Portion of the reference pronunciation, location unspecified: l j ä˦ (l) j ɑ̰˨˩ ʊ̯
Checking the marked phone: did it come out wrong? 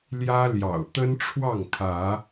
no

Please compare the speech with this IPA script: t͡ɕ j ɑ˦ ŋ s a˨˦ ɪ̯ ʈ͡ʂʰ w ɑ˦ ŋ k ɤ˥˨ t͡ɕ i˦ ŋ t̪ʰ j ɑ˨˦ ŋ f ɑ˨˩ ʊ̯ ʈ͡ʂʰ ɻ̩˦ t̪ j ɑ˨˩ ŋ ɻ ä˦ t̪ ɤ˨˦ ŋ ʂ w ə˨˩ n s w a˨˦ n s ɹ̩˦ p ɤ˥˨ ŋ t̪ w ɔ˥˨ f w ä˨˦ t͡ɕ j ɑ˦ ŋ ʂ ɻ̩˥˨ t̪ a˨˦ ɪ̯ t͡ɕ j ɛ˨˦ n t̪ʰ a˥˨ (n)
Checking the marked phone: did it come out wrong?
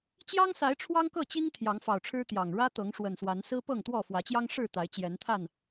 no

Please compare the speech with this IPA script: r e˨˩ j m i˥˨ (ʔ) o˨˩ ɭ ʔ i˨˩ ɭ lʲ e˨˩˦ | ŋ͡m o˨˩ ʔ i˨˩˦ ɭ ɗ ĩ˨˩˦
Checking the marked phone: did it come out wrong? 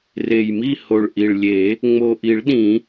yes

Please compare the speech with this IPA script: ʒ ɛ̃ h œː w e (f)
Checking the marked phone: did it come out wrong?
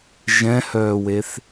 yes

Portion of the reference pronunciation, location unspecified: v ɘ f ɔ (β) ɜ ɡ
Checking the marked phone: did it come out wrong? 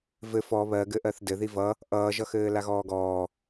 no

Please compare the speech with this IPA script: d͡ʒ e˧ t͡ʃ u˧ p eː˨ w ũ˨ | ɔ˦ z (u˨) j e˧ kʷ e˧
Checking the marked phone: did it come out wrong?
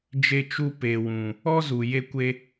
no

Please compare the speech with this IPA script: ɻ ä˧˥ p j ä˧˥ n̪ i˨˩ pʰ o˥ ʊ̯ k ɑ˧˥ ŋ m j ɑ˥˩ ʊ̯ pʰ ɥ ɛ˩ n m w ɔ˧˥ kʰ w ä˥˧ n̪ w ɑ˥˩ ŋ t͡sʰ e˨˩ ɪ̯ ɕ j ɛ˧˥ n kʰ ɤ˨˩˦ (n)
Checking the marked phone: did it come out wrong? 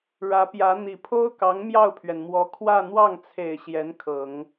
yes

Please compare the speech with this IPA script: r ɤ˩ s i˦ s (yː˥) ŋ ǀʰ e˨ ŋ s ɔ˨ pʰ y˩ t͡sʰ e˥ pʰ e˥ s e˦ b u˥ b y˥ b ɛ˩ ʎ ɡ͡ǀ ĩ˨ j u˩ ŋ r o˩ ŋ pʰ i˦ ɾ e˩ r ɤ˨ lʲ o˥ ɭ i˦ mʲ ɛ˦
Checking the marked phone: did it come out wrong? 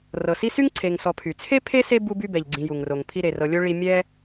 yes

